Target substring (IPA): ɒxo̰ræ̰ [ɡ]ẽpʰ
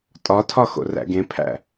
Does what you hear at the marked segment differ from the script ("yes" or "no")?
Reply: no